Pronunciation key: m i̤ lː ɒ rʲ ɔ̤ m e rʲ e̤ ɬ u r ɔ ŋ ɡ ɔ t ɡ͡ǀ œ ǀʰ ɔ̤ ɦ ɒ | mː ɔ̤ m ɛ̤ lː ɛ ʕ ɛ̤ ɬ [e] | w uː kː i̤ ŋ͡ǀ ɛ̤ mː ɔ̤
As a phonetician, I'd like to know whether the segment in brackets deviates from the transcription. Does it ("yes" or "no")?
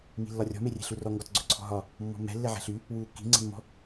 yes